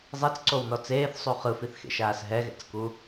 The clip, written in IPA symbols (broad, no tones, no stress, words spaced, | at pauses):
zˤit͡sǀownɔ t͡seːθsˤu χɯfiθxḛʃaːs ɦɛɣɛ̰t͡sku